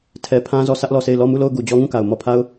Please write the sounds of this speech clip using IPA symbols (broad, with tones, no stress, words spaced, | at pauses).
tʰɛ˨pʰã˦ zɔ˦˨sä˦ʔlɔ˦˨se˦˨ɪ̯ lɔ˦˨mu˦˨lo˦˨ʊ̯ ɡu˨d͡ʑɔ˦ŋũ˦˨ka˨ʊ̯ mɔ˦˨pʰa˦ʊ̯